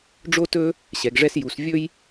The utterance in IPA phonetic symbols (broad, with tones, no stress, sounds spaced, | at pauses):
ɖ͡ʐ o˥ t ɵ˥ | ɕ ɛ˩˧ ɡ ʐ ɛ˥ s j u˩˧ s vʲ ɵ˥ j